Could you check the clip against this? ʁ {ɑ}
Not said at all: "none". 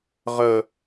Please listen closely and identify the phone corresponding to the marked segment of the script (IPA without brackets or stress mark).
ə